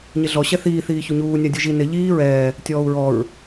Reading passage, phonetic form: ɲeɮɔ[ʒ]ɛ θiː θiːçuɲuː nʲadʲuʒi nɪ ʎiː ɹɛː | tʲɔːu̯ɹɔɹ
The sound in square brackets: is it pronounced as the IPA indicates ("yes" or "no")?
no